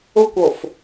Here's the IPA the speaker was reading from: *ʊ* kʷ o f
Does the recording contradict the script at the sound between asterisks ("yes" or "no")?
no